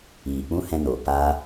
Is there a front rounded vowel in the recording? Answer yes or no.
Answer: no